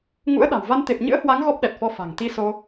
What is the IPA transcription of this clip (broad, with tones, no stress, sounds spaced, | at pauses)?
ŋ ṵ˧˥ ə̯ ɗ a̤˨˩ w v a˧ n t̪ e˨˩ p̚ ɲ ɨ̰˧˥ ə̯ h w a˨˦ ŋ ɣ ɔ˦˥ p̚ ɗ ɛ˨˩ t̚ f ɔ˧ f a̤˨˩ ŋ t̪ i˧ s o˧